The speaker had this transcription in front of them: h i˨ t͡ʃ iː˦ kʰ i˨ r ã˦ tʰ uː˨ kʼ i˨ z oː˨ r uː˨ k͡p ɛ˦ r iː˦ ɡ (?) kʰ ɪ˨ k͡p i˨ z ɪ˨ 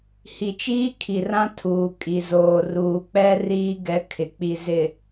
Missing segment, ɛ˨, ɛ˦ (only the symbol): ɛ˦